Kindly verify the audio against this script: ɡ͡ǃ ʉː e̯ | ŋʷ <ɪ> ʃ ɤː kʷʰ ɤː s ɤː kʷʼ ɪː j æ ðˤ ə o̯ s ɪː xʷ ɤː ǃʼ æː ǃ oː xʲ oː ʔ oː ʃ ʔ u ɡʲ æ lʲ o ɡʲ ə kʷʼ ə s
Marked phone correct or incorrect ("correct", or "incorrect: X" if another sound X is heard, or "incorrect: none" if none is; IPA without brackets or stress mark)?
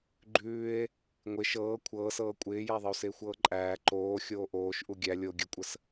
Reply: correct